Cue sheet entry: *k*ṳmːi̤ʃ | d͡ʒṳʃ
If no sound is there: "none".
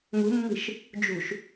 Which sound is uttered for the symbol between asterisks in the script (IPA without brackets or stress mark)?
ŋ